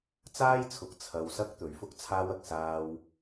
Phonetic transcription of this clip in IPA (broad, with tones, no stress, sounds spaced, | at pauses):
t͡s aː˥ j t͡sʰ ʊ˨˥ k̚ t͡sʰ ɐ˧ w s ɐ˥ k̚ t̪ ɵ˨˥ ɥ f ʊ˥ k̚ t͡sʰ aː˥ w ɐ˨ k̚ s aː˧ w